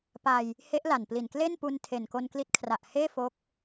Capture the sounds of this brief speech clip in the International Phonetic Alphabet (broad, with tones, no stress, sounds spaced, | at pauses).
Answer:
p a˧ j | h e˦˥ ʔ l a˨˩ n p l i˨˩ n k l e˥˩ n p u˧ n tʰ e˨˩ n k o˧ n k l i˦˥ t̚ kʰ r a˨˩ ʔ h eː˥˩ f o˦˥ k̚